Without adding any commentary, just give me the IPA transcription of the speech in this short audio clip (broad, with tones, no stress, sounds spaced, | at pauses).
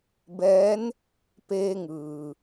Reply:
b ɛː˧˥ n | p eː˧ ŋ ɯː˩